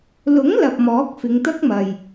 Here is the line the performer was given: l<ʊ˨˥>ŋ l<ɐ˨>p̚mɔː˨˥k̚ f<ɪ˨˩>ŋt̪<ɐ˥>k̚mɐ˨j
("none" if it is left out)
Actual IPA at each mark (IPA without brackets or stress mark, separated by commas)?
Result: ʊ˨˥, ɐ˨, ɪ˨˧, ɐ˥